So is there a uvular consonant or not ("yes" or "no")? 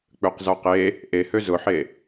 yes